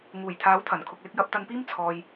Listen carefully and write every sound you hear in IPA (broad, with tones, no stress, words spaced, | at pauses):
ŋuː˨˩jt̪ʰaː˨˥wt̪ʰɐ˨˩nkʰʊ˨k̚ lɪ˧k̚jɐ˨˥p̚t̪ɐ˧npiː˥m t͡sʰɔː˧j